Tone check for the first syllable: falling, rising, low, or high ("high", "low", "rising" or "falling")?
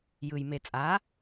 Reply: low